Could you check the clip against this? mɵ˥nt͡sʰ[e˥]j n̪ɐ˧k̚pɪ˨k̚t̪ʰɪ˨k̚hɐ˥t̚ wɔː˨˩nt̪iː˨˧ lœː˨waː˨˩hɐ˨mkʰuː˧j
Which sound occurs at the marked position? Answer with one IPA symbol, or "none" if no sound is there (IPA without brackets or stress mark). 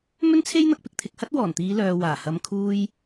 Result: e˥